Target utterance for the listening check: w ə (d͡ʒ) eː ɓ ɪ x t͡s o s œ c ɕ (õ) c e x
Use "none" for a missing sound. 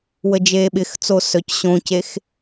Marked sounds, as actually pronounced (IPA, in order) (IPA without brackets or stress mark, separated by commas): d͡ʒ, õ